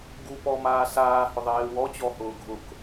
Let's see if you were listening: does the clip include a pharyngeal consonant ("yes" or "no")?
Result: no